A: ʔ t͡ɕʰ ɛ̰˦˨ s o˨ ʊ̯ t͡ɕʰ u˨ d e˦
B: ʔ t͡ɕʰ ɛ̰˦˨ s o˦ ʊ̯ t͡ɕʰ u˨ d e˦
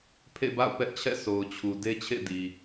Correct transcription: A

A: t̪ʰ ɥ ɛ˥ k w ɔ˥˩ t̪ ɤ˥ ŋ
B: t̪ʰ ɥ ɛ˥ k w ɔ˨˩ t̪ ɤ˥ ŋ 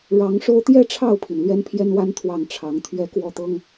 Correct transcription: A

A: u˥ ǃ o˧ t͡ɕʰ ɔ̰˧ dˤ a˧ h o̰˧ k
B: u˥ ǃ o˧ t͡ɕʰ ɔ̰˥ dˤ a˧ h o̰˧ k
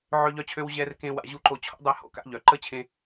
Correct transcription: B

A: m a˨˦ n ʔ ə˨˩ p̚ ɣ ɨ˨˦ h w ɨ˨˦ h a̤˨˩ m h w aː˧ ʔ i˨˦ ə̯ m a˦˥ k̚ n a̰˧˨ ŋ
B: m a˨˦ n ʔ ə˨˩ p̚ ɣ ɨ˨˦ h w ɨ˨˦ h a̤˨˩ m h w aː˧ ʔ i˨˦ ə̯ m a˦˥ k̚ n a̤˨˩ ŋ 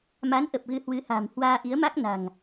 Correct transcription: B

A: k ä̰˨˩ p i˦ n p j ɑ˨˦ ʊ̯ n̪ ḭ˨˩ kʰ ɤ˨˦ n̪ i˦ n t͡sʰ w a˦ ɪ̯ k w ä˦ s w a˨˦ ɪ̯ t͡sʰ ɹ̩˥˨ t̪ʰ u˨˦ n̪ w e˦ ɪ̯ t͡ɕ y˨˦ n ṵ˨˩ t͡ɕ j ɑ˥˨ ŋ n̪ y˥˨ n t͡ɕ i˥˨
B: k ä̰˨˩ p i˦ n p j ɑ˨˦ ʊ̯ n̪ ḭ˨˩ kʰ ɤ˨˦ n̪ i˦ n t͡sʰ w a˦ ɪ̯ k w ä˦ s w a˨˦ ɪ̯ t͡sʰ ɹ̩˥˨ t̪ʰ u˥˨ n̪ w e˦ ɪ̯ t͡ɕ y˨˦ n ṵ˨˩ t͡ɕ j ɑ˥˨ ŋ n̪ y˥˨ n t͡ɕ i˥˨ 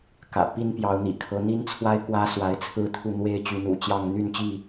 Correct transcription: B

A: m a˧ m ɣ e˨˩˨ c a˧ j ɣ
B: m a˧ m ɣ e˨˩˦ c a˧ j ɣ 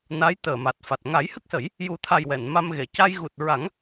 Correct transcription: A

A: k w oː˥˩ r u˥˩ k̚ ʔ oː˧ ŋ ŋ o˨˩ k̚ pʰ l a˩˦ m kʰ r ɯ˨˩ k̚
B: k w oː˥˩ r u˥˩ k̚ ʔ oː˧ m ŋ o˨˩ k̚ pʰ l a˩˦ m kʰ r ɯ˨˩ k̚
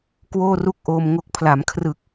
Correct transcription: B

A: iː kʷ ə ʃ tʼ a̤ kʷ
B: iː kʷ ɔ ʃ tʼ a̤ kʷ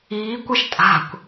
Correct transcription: A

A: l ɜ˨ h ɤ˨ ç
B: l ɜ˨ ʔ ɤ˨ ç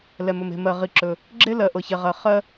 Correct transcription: B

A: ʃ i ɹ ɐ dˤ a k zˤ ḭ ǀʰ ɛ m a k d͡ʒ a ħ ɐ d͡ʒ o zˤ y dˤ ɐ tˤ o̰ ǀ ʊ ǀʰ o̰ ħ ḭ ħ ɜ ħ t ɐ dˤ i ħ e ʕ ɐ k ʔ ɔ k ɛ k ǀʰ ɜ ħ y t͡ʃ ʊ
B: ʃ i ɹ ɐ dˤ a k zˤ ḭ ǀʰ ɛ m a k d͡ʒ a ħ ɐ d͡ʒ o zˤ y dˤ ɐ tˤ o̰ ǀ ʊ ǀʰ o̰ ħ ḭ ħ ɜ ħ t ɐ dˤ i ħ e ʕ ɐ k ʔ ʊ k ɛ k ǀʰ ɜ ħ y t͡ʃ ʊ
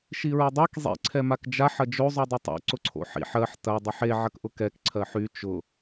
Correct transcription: B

